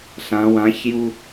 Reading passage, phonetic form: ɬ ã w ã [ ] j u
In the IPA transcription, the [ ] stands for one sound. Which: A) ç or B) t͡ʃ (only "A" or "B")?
A